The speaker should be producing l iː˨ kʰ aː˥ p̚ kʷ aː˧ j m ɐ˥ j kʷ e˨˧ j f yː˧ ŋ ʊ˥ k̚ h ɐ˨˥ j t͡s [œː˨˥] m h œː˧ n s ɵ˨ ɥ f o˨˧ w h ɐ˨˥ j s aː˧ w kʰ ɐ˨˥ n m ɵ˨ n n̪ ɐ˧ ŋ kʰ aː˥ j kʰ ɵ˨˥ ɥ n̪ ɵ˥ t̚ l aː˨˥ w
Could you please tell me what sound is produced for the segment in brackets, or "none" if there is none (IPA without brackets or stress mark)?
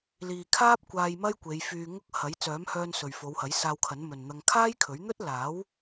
œː˨˥